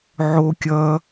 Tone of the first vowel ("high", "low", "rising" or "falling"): high